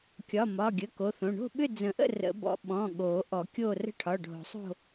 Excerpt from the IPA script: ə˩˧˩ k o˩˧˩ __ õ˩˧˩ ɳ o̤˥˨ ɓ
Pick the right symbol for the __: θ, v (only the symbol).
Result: θ